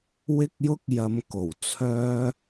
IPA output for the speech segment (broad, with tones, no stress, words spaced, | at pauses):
wɪ˥k̚jʊ˥k̚ jɐ˧mko˨˩wt͡sʰœː˥